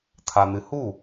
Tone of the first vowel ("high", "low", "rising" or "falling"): low